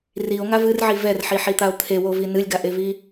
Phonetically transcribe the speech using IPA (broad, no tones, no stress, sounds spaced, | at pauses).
r i o̯ ŋ a v ɨ r ʕ i v ɛ r ħ i ħ i t̪ a o̯ t̪ʰ e w o v i n ɨ lʲ ɡ a ʔ e v i